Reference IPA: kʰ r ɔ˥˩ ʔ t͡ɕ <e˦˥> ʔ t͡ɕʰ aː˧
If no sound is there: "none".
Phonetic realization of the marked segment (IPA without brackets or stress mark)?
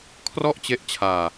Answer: e˦˥